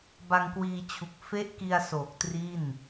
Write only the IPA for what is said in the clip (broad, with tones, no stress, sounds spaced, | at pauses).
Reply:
b a˧ ŋ k w iː˧ t͡ɕʰ u˨˩ k̚ f e˦˥ ʔ k i˧ a̯ s oː˨˩ k̚ t r i˥˩ n